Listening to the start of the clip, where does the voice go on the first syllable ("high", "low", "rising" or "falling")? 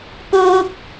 high